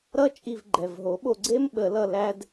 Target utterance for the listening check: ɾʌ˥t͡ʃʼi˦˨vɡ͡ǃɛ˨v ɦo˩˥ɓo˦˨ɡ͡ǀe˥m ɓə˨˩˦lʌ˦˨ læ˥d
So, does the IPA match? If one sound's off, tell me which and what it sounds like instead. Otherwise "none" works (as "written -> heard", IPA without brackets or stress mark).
none